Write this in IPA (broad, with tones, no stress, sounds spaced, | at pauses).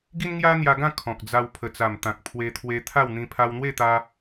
ɡ i˦ n ŋ j a˦ n̪ j a˧ ɡ ã˥˧ kʰ ɔ̃˨ k̚ d͡z a˧ w pʰ ə˨˩ t͡s a˨˩ m t̪ ã˨ k̚ pʰ w e˧ t̪ʰ w e˧ t̪ʰ a˥˧ w n̪ ĩ˧ pʰ a˧ w n̪ w e˥˧ t̪ a˧